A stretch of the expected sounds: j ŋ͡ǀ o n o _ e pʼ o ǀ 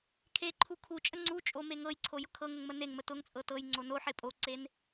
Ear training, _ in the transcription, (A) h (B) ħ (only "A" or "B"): B